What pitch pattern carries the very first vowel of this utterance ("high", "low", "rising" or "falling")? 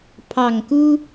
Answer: low